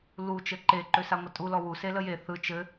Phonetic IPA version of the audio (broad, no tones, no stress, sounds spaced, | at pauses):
l u t͡ʃ ɘ ǃ e ǃ ø s a ŋʷ ə tʼ u l ɔ w u s e l ə j e θ ɯ t͡ʃ ɘ